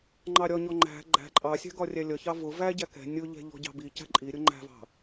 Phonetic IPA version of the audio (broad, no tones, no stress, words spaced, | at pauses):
ŋ͡ǃɑɾʲɒɲɔ ŋ͡ǃæ̤ ɡ͡ǃæ̤ ǃʼɑsʲæ̤ ɡɒrʲælʲʌçɑ vʊ væɟæ kɛ̤ nʲʊʎɛ̤ ʎɔ̤ɟɑ̤bicæ̤ ǃʼiɾʲʊ ŋ͡ǃæ̤vɑ̤